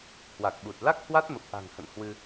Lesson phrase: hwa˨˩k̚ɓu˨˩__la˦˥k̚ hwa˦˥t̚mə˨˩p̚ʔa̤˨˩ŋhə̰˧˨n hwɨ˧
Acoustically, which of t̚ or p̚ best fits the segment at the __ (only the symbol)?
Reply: t̚